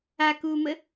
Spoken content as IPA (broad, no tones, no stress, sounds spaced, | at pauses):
a k uː m ə